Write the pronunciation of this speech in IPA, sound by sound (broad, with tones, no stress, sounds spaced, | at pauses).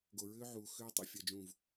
ɡ o˨ ɹ ʏː˦ ʕ uː˨ x ʏː˦ tˤ ḭ˦ fʲ ɜ˧ d͡ʒ ũː˦˨ v